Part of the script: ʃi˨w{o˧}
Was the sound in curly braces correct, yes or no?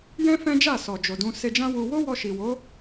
no